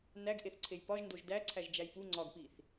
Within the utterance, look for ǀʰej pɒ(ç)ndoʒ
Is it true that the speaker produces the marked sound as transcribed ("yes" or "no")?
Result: no